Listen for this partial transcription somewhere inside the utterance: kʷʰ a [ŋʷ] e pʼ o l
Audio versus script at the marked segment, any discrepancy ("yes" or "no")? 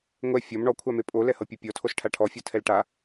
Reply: yes